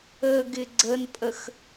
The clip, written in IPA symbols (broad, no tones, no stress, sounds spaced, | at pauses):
ə ɡ ɪ ɡ͡ǀ ə n pʼ ə x